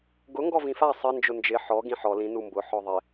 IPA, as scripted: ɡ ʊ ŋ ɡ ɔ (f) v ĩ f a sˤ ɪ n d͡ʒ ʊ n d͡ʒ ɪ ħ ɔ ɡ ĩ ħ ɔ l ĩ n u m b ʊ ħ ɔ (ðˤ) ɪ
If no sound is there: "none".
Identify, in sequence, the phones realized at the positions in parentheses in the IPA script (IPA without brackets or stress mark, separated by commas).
none, ðˤ